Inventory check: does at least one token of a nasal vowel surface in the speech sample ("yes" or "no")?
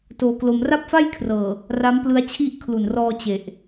no